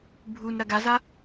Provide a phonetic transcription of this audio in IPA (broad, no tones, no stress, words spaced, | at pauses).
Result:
bʱun ɾɐɡaza